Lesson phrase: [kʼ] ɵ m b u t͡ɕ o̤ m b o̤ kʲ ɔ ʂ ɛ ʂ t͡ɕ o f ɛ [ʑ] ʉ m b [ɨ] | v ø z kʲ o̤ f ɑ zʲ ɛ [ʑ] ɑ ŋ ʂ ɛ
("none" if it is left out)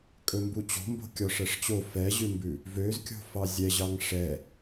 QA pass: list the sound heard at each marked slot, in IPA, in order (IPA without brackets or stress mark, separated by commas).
kʼ, ʑ, ʉ, ʑ